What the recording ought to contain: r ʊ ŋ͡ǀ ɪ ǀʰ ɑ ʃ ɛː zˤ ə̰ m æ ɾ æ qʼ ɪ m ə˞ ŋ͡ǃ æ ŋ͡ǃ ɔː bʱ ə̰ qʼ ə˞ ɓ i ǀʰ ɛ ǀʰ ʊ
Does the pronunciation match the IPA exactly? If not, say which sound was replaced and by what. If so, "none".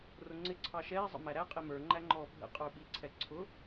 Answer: none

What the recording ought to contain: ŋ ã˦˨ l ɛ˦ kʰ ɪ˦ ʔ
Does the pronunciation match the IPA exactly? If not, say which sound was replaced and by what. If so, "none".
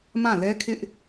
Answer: ŋ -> m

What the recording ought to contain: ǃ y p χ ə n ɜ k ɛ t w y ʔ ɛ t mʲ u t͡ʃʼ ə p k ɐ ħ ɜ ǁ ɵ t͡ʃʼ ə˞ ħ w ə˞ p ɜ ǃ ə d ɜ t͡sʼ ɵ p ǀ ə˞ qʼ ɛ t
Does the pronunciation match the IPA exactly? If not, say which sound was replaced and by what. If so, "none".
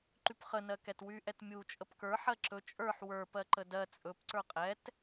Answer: ɐ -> ə˞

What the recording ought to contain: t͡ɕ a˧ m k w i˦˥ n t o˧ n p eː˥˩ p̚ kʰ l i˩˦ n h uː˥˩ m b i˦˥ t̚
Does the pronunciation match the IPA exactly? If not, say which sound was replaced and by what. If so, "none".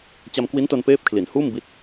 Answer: none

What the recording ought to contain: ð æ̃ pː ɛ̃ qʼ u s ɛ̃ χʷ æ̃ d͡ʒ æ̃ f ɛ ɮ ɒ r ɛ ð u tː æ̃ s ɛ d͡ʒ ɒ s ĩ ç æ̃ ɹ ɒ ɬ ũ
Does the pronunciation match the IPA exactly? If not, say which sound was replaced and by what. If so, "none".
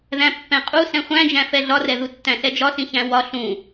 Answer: ɹ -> w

